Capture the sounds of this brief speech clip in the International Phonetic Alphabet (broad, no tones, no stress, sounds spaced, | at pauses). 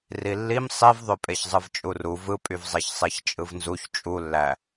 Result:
r i lː i m sˤ i v ðˤ ø pʼ e ç zˤ ɯ v t͡ʃʼ u r u v ɯ pʼ y v zˤ e ç sˤ e ç t͡ʃʼ ɯ v n z u ç t͡ʃʼ u lː æ